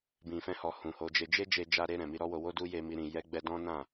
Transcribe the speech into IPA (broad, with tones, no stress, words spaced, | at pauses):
bĩ˨fɛ̃˧hɔ˨ hũ˨ho˨˦d͡ʒe˧ d͡ʒe˦d͡ʒe˧d͡ʒa˧ɾe˧ ɾɛ̃˨mi˧ɾɔ˦wo˧ wo˦du˦je˧mi˧ ɾĩ˨jɛ˨˦ɡ͡bɛ˧ dɔ̃˦ nã˦˨